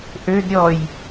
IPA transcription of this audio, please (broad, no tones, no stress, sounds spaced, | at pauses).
ʔ ø d ɾʲ ɔ j